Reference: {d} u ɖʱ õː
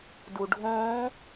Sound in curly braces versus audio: correct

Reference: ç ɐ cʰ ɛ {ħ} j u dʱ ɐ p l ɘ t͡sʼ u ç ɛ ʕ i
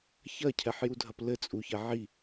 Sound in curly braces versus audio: correct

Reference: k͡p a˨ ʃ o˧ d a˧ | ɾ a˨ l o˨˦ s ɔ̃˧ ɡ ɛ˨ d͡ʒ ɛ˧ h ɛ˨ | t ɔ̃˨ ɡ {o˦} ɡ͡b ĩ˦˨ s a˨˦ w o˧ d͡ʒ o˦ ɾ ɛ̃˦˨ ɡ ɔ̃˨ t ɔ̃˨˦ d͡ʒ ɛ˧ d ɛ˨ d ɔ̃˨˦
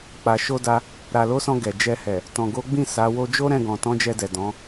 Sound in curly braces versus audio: incorrect: o˨˦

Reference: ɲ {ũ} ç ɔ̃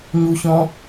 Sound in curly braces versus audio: incorrect: u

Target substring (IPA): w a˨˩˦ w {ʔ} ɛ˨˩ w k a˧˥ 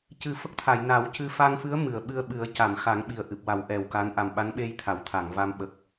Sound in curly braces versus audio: correct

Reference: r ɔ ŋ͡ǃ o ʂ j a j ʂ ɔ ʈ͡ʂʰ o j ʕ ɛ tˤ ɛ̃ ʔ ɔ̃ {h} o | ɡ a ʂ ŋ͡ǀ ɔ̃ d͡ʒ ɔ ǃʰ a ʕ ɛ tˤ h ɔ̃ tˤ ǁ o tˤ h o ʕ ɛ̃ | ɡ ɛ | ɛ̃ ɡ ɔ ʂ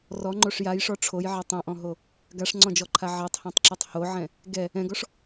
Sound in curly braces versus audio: incorrect: ɦ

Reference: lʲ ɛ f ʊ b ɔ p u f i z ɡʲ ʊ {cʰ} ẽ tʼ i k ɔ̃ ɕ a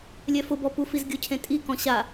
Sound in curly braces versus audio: correct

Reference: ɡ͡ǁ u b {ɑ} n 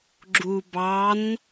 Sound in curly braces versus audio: correct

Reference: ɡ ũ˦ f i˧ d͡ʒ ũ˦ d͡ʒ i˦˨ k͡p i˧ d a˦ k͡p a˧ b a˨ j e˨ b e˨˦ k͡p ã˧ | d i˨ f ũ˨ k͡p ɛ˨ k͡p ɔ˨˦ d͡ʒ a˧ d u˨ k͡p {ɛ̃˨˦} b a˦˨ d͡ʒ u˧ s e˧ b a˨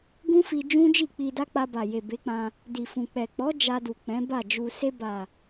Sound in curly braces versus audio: correct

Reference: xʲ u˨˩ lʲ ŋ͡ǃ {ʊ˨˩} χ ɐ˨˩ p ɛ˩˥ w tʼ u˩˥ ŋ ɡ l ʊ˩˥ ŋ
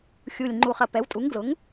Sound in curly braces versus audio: incorrect: u˨˩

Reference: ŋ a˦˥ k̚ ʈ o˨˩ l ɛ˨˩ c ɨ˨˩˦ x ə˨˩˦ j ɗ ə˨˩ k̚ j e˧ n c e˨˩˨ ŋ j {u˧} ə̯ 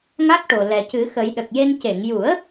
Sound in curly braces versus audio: incorrect: u˨˩˦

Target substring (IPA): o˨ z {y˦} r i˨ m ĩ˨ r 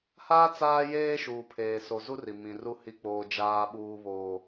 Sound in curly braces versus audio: incorrect: u˦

